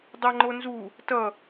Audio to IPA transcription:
dˤ ʌ ŋ͡ǃ o n z u | t ʌ

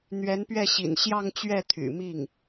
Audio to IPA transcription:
n̪ ɥ ɛ˧˥ n p ɥ ɛ˥˩ ɕ ḭ˨˩ n ɕ j ɑ˥˧ ŋ t͡ɕ ɥ ɛ˥˩ t̪ʰ y̰˨˩ m i˥˩ ŋ

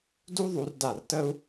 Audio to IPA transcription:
d u˥ ðˤ u˩˧ r d a˧˩ r t ə˥ u̯

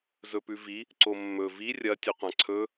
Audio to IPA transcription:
z ɵ p ʉ v i | ǀ o mː ɵ v i rʲ ɐ tʲ ɨ qʷ ã ǀʰ ɵ

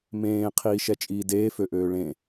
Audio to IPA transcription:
m ẽː qʰ iː ʃ ɛ t͡ʃʼ iː d eː f ø ʔ øː ɭ ẽ

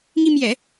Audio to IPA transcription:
ŋ i˧ m j ɛ˨˩˦

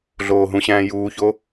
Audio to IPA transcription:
ɮ oː ɦ ũ ɕ æ̃ː j uː ç o

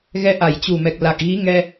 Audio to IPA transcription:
ɣ ɛ˧ ʔ a˧˩ j t͡ɕ u˨˩ m ɛ˨˩ k̚ l a˨˩ k̚ ɣ i˨˦ ŋ ɛ˧

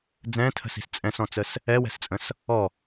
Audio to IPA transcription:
d͡z ɛ̃ tʰ ə̤ s i̤ s t͡sʼ ɛ̃ s ɔ̃ t͡s ə s | ɛ w ɛ̤ s t͡sʼ ə̃ s | ɔ

